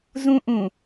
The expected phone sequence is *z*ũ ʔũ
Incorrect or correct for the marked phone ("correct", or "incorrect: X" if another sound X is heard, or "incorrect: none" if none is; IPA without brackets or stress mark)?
correct